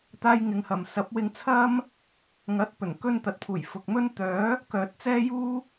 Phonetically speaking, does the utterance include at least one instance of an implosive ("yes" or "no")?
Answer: no